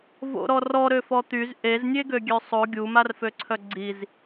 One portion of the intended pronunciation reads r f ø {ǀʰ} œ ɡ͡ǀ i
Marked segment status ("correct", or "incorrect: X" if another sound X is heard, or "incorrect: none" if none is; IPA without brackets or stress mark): correct